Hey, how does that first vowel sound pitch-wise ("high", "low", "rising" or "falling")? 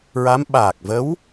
rising